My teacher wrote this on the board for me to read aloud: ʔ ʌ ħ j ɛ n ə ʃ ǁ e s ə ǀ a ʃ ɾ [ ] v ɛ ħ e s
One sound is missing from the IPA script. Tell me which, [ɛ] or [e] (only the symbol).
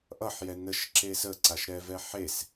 ɛ